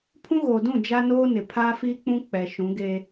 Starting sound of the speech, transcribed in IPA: pʰ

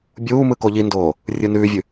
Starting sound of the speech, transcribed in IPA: bʲ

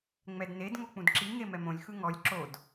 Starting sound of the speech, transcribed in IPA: ŋ͡m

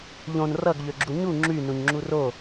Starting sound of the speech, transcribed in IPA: ʎ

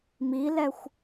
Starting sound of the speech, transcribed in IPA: m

